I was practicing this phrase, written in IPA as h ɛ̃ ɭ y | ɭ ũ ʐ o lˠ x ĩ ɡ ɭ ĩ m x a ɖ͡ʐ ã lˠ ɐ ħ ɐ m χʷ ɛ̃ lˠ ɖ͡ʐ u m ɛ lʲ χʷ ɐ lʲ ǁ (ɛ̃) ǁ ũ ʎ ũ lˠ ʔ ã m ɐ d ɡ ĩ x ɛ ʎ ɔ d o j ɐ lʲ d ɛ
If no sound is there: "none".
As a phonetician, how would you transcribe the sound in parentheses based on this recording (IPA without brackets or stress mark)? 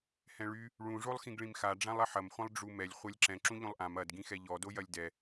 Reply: ɛ̃